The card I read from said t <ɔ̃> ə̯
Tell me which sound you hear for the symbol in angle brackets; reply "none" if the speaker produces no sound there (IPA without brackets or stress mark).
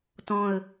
ɔ̃